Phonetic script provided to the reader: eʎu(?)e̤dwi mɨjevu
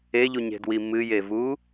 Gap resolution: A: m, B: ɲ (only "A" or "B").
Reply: B